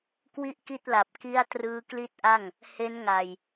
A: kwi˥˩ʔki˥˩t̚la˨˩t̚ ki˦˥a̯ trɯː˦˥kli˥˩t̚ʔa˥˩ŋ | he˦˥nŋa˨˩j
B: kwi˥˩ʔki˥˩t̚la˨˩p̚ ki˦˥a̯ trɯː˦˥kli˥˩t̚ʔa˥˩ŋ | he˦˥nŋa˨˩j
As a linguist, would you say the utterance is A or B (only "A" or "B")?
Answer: B